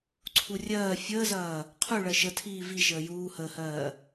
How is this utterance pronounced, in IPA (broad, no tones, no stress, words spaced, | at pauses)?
ǀʰurʲɜː fʲəːzɐː | qʰu ɭɜʃətʰiː viʃəː juːhəːhɜː